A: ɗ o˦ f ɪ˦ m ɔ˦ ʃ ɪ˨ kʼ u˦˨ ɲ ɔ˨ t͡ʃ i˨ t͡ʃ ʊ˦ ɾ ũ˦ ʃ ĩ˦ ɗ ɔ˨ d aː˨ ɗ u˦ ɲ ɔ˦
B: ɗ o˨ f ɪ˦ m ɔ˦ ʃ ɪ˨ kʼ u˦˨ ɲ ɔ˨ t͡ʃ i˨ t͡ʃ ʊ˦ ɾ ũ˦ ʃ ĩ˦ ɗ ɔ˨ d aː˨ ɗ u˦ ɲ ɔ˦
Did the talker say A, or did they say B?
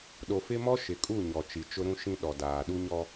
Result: B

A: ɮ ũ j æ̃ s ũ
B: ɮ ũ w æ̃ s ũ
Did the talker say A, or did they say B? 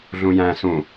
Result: A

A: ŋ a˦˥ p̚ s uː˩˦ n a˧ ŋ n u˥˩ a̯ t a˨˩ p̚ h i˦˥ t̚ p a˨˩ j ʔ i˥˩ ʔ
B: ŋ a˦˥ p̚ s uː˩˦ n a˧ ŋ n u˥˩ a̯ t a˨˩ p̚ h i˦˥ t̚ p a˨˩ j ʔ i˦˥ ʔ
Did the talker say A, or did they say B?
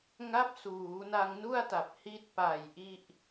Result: A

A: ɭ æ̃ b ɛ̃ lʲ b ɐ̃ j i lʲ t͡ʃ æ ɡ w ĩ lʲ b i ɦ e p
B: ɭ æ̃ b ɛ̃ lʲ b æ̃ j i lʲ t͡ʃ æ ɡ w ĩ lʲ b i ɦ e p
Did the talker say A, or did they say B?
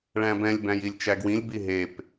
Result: B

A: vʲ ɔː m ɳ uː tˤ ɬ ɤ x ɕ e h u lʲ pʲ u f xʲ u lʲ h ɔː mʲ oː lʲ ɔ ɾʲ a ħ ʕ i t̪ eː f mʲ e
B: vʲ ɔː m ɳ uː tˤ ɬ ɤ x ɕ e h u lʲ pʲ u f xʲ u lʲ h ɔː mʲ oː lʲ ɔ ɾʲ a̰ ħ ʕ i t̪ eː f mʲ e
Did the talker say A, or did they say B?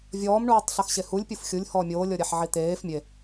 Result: A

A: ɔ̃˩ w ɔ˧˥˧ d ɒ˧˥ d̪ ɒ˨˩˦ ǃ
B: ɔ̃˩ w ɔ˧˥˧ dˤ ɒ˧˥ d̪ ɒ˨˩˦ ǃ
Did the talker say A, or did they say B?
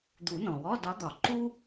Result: A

